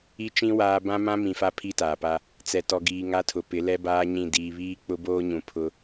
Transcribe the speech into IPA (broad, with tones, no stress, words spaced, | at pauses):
i˦t͡ʃĩ˦ waː˦ bã˦mã˦ mĩ˨fa˦ pʰi˦taː˨pa˦ | t͡sɛ˨tɔ˨ɡiː˨ ŋa˦tʰʊ˨pɪ˨˦ lɛ˦baː˦ ɲĩ˦˨ diː˨βiː˦ k͡pʊ˦boː˦ɲũ˨ pʰʊ˦